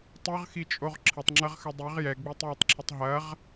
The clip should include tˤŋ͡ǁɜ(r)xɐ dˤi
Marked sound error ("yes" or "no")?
yes